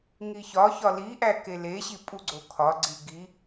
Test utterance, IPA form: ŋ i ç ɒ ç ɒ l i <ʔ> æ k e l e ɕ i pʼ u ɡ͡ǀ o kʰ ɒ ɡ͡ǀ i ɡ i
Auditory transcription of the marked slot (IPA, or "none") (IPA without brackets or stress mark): ʔ